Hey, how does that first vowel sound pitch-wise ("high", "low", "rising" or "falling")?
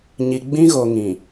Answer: low